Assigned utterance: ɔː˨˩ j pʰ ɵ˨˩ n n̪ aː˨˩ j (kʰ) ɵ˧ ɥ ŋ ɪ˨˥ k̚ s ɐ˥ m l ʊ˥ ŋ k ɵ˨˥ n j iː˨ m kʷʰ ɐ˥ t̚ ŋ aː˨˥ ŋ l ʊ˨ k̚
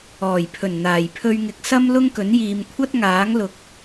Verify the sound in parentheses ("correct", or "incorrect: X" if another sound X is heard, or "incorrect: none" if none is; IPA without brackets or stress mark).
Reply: incorrect: pʰ